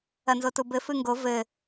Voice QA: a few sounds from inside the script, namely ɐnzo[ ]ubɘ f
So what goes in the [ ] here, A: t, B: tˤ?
A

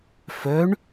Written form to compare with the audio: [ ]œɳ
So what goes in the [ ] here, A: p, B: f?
B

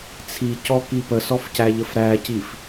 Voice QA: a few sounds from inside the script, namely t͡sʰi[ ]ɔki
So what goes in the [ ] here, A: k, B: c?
B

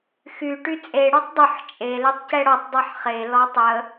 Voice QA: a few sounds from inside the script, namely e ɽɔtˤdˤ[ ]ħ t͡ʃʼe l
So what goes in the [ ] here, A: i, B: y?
B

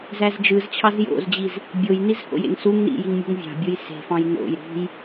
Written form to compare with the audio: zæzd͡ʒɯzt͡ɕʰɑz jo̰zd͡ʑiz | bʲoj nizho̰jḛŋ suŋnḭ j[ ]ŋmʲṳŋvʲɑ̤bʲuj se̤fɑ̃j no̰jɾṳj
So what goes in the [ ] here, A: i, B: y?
A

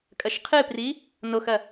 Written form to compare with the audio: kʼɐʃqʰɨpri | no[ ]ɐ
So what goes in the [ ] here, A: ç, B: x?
B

